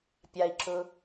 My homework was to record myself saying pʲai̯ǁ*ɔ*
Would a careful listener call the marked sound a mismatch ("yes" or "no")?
yes